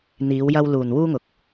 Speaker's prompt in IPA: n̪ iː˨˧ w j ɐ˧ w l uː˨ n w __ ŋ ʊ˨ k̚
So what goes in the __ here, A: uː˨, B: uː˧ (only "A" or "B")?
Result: B